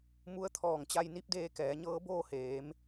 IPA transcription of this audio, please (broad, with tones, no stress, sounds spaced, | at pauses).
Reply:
m u˧˥ ə̯ t̪ʰ ɔː˧˩ ŋ t͡ɕ a˧ j n i˧˥ p̚ d eː˧ k ɛː˩˧ ɲ ɤː˧˥ b oː˥˨ h eː˩˧ m